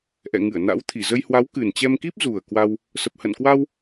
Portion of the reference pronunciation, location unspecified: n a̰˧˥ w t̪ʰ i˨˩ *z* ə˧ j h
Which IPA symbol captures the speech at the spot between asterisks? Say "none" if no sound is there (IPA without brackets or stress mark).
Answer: z